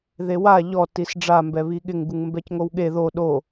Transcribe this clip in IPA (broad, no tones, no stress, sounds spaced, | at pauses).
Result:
ð e w a ʎ ɔ t i s ɖ͡ʐ a m b ɛ β i ɠ ɪ ŋ ɡ u ŋ m b ɛ c ŋ o w ɠ e ð o ɗ o